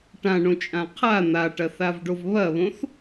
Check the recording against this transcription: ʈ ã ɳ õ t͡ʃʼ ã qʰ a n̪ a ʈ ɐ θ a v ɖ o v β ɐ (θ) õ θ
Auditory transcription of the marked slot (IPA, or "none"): β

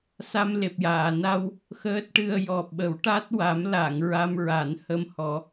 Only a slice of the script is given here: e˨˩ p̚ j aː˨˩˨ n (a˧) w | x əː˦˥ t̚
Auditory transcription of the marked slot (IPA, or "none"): a˧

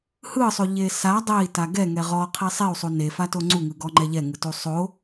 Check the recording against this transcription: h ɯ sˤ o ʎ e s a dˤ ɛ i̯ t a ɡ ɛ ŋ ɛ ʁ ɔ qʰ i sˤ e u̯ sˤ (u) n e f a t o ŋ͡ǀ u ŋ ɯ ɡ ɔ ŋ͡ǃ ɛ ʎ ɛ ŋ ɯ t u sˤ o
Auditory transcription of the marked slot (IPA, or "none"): u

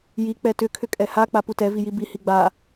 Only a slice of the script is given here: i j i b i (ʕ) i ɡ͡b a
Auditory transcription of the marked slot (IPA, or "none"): h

